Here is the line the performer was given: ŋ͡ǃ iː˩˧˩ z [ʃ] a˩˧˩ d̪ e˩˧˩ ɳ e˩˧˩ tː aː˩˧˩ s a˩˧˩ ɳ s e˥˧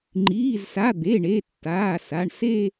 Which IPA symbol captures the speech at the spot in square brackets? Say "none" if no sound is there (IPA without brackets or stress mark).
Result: s